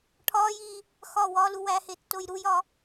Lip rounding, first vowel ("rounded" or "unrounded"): rounded